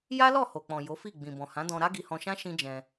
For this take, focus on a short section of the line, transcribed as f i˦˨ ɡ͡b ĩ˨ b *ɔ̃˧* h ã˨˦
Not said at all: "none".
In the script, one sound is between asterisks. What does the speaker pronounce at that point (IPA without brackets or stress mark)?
ɔ̃˨